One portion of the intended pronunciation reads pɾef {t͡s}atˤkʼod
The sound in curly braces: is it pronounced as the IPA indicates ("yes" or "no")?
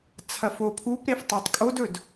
no